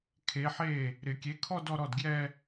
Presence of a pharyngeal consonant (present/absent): present